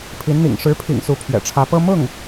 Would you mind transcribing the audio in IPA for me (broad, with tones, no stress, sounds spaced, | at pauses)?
pʰ i˧˥ n n̪ ḭ˨˩ ŋ ʂ ɻ̩˧˥ pʰ ḭ˨˩ ŋ s u˧˥ pʰ ɥ ɛ̰˨˩ ʈ͡ʂʰ ä˧˥ p ɤ˥ m ʊ˥˩ ŋ